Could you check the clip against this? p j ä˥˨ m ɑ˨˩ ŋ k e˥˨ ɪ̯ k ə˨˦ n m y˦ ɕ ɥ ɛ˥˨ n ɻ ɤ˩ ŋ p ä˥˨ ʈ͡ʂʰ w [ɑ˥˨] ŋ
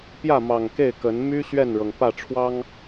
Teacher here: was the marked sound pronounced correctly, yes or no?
no